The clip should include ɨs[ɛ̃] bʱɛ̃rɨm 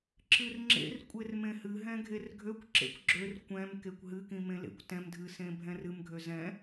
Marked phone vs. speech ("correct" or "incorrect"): incorrect